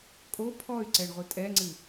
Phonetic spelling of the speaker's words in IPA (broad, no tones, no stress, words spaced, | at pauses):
kʼo pʰɔy̯ ǀɛɳʁʷɨtʼɛŋ͡ǀɨ